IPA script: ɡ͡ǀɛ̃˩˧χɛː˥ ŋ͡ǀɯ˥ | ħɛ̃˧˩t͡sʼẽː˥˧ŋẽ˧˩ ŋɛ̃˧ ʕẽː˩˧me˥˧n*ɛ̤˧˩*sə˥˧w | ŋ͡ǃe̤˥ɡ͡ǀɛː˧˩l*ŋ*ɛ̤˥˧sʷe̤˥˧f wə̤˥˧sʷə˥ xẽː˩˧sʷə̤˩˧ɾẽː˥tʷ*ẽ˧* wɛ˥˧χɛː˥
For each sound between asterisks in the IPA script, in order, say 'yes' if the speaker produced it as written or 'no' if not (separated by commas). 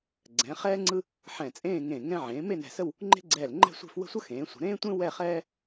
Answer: yes, no, no